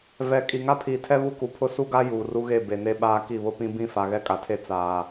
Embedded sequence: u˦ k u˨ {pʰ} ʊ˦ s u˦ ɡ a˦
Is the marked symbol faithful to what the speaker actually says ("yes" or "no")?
yes